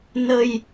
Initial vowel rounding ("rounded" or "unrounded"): unrounded